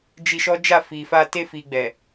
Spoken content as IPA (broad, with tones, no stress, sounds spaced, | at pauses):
d͡ʒ i˧ ʃ ɔ˦ d͡ʒ a˦˨ f i˨ f a˧ t e˧ f i˨ ɡ͡b ɛ˨